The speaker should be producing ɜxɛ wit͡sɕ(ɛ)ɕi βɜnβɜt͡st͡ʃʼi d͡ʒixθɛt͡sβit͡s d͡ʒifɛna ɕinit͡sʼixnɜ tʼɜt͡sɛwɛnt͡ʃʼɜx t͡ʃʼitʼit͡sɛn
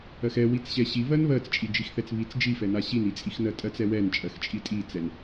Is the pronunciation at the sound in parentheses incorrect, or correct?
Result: correct